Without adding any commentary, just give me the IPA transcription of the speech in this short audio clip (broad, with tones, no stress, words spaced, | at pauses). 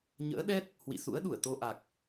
ɲə̰ː˧˥ɗɛ˦˥t̚ | hwḭ˧˨sṵ˧˥ə̯ɗu˧˩ə̯ t̪o˧ʔa˨˩k̚